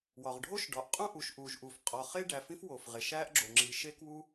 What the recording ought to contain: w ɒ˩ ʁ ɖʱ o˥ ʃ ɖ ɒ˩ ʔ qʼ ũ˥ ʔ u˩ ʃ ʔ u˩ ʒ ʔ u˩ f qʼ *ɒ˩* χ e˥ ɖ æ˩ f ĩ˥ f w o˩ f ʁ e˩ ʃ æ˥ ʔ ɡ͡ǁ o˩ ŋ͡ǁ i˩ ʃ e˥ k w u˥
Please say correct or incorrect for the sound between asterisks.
correct